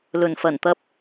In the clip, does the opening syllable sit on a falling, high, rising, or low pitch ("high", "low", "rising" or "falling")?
low